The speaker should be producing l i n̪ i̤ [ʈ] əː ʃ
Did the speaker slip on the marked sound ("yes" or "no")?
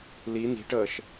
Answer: no